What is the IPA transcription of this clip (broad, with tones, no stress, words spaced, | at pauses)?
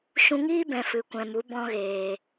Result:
ʃũ˧ŋiː˦bɛ̃˨ fɨ˨kʷɛ̃˨mu˨˦ bɔ̃˦ɣeː˨